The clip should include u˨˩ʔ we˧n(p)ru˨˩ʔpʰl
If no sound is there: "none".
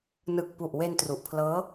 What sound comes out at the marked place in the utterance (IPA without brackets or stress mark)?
t